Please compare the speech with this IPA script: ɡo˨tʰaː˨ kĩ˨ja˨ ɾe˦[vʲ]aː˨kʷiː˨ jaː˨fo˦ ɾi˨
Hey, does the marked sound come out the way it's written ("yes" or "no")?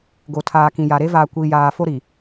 no